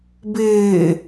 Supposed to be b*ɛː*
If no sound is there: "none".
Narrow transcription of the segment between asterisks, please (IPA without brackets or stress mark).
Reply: ɪː